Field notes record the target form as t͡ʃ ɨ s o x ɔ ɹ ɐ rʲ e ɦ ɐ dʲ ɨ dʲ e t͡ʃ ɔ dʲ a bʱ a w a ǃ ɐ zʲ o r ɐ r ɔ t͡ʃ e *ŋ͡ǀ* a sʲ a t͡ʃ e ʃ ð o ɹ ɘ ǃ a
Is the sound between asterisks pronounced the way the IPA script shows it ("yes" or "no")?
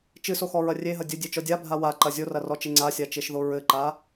yes